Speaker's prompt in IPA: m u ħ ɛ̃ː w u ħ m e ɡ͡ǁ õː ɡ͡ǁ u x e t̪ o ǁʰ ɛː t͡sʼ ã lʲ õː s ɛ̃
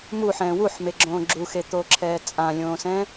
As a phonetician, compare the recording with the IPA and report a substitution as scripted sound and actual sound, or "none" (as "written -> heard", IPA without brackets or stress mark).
none